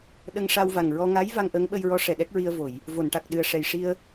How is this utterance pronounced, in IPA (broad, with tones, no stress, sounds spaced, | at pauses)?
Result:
ɗ ə˧ ŋ ʂ a˧ w v a˨˩ ŋ ɹ ɔ˧ ŋ a˧˥ j v a˧ ŋ ʔ ə˧˥ ŋ ɓ ə˧ j ɹ ɔ˧˥ ʂ ɛ˨˩ ɗ ɛ˦˥ k̚ ɹ i˧ ə̯ v o˨˩˨ j | v o˨˩˨ n ʈ a˨˩ k̚ ɗ ɨ˨˩ ə̯ ʂ ɛ˨˩ j ʂ i˧ ə̯